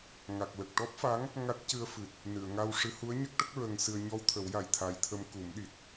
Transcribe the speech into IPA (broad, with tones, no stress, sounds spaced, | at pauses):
ŋ a˨˩ k̚ l ə˨˩ k̚ ʈ ɔ˦˥ p̚ f a˧˥ ŋ | ŋ a˦˥ t̚ c ɨ˧ ə̯ f ɨ˨˩ t̚ | n ɨ˨˩˨ ə̯ ŋ a˧ w ʂ ɨ˧˥ h u˧˥ ə̯ ɲ ə˦˥ k̚ ʈ ə˦˥ k̚ ɹ ə˧ ŋ s ɨ˧ ə̯ ɲ ɔ˧ w t̪ʰ ə˨˩˦ w j a˨˩ j t̪ʰ a˧ j t̪ʰ ə˧ m k u˨˩˦ m ɗ i˨˩ t̚